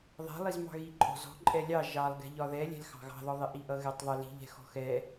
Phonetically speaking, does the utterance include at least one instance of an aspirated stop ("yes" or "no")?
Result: no